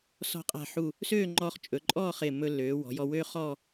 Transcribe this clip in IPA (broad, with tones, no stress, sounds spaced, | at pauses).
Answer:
s ɔ̤˧ qʼ a̤˧˩ ħ u˧˩ | s øː˥˧ ŋ͡ǃ ɔ˧ χ t͡ʃʼ ɵ˩˧ ǃʼ ɔː˥˧ χ ɪː˧˩ mː ɵ˧ lː øː˩˧ w ɔ̤˩˧ j ɔ˧ w øː˥ χ ɔː˥˧